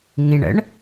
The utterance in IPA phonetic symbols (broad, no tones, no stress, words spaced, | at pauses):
ŋĩɳə̰ɳ